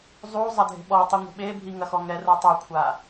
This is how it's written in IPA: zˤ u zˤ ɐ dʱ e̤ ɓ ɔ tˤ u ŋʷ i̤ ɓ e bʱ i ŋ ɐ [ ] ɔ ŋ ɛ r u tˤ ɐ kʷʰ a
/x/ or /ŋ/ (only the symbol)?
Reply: x